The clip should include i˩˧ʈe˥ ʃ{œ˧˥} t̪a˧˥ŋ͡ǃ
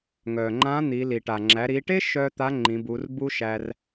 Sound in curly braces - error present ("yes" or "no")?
yes